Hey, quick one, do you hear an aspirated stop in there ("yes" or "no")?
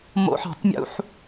no